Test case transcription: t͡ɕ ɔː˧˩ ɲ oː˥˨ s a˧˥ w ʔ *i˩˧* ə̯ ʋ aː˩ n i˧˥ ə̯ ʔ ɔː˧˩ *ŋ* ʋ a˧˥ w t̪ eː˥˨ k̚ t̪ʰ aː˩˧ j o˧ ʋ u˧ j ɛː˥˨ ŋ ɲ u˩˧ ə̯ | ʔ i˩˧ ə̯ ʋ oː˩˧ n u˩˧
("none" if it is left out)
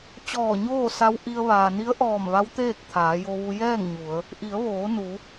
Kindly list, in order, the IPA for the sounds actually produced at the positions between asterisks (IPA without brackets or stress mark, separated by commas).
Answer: i˧, m